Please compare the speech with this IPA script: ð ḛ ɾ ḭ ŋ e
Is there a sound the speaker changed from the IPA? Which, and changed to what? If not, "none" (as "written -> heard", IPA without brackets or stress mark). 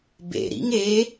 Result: ð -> b